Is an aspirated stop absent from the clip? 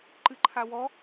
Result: no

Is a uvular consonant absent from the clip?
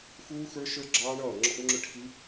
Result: yes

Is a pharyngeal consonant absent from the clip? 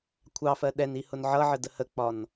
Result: no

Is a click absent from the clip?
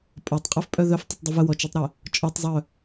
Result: yes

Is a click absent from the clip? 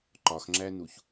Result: no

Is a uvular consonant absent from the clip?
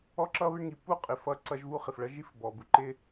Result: no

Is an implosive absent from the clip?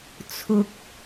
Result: yes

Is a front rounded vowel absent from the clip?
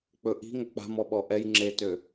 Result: no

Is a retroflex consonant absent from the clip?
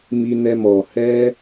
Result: yes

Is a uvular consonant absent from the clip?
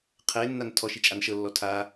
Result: no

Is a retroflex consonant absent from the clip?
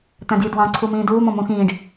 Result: no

